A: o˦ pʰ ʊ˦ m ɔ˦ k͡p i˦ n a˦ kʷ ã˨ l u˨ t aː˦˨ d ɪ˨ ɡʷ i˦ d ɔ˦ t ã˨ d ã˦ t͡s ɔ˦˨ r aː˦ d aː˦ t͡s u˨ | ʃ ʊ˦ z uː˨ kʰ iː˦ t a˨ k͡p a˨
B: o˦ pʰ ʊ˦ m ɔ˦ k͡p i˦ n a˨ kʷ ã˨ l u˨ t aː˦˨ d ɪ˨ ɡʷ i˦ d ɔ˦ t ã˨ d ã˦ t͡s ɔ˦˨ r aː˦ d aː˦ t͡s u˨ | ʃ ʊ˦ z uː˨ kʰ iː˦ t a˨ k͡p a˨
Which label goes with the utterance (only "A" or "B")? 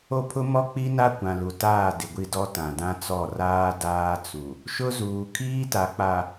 A